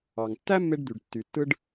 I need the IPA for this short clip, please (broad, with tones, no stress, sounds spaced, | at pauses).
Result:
ɑ˩ ŋ tː æ˥ mː e˥ ɖ d̪ y˩ ɖ tː y˩ tː ɯ˥ ɖ